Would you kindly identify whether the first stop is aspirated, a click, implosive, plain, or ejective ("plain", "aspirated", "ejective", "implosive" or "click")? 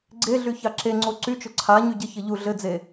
click